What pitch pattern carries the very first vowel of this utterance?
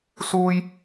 high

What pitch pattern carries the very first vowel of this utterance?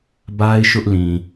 high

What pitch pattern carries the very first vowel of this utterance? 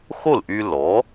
falling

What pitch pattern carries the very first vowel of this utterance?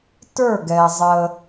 falling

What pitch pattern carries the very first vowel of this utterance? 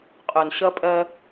low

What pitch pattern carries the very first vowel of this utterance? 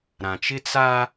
low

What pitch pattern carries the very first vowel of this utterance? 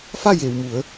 falling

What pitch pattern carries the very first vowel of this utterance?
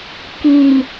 low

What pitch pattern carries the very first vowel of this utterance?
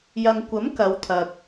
low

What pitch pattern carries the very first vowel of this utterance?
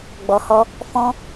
low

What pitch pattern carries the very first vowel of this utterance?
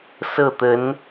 falling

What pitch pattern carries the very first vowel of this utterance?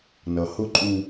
low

